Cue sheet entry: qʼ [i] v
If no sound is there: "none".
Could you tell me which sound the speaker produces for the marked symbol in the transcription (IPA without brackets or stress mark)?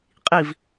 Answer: i